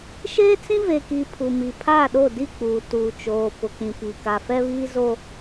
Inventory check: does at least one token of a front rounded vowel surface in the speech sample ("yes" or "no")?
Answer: no